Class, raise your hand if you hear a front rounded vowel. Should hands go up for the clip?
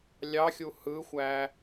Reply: no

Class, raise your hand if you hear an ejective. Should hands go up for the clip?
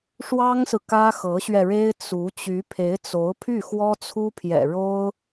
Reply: no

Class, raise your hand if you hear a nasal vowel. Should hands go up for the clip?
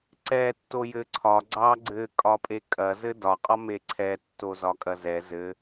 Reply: no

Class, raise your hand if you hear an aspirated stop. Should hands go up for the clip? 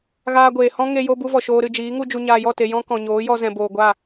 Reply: no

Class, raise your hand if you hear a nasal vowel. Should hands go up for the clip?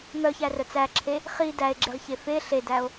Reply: no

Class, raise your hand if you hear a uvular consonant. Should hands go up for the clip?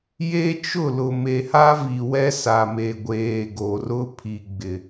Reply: no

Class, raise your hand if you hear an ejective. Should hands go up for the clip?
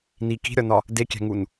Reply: no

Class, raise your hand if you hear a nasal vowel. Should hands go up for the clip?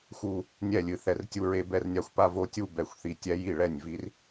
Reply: no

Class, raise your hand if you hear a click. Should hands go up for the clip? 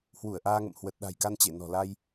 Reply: no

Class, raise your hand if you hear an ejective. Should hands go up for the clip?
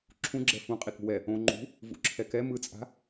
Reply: yes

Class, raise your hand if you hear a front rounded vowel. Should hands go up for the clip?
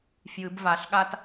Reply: no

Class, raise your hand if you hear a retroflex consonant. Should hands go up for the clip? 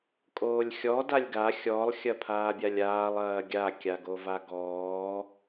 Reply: no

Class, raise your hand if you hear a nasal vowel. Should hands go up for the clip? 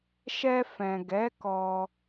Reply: yes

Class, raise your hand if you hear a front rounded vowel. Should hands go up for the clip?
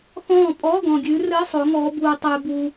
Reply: no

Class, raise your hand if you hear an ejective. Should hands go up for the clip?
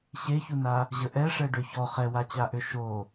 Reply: no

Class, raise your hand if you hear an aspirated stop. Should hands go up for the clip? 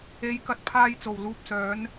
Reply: yes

